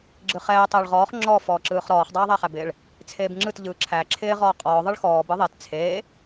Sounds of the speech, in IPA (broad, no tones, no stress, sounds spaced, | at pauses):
ɡ͡ǁ ɯ χ ɛː tˤ ɯː ɭ ʁ ɔː χ ŋ͡ǁ ɔ f ɔː ǁ ɯː χ ɾ ɔː χ dˤ aː ðˤ æ χ æ b ɪː ɭ | t͡sʰ eː b ŋ͡ǁ ɯ t ʎ ɯː ǁʰ æ ǁʰ ɪː ʁ ɔː qʼ ɔː ðˤ ɯ ɭ x ɔː b ɯ ðˤ e t t͡sʰ eː